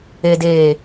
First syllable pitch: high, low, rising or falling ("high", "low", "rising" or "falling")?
low